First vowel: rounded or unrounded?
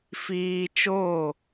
unrounded